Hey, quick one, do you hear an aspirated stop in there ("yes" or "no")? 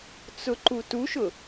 no